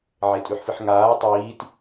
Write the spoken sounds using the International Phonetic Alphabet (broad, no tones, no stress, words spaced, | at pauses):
ʕetʼʉħfɨħŋaː tˤiːt